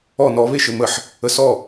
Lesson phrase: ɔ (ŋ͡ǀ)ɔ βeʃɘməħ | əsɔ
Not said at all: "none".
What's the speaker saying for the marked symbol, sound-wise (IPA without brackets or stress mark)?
n